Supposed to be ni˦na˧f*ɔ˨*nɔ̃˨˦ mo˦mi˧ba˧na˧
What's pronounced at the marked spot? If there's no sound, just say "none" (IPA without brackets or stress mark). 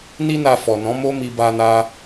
ɔ˨